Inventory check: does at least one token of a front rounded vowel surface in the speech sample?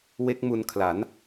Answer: no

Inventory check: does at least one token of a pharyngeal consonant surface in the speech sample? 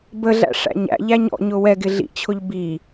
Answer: no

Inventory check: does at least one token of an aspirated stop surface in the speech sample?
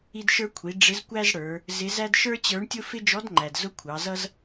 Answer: yes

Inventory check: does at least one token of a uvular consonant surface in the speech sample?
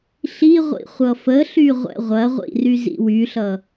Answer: yes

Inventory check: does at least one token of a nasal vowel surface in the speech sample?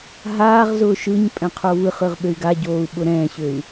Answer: yes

